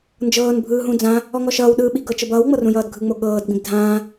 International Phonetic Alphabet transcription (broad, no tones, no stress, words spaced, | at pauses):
nd͡ʒɤːn bʱɯːɦũd͡zã | ɔŋɔʃʌːwɗɯː ɓiɡɤt͡ʃɤb ʌːwŋ͡mɤrũ jʌːdɡʱɯŋ͡mo ɠɤːdɡ͡bĩb dʱãː